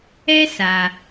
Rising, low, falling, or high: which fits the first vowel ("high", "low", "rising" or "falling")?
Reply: high